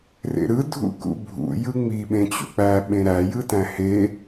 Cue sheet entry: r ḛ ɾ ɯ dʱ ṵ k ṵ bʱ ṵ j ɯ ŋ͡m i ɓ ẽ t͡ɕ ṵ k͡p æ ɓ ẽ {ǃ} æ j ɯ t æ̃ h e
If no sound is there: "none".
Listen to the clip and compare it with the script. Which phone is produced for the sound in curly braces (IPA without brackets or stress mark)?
ɾ